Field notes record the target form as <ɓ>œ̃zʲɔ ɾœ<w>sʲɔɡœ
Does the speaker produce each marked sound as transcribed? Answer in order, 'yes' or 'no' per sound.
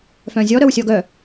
no, yes

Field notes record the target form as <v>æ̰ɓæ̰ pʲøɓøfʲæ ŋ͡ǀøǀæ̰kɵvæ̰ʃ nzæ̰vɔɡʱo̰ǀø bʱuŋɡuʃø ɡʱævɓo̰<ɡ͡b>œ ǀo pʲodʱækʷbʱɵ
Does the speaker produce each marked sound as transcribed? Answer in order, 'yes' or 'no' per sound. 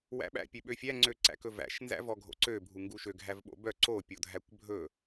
no, no

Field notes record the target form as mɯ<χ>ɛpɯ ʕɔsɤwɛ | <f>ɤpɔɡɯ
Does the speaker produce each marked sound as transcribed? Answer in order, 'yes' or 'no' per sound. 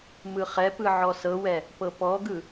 yes, no

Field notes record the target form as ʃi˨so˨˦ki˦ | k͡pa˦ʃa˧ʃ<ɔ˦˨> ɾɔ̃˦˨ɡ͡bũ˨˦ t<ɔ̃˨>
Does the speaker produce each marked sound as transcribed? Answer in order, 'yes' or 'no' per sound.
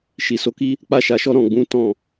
no, no

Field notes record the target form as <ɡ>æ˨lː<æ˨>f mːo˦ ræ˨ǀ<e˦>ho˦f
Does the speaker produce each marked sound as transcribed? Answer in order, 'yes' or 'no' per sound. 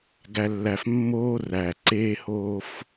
yes, yes, yes

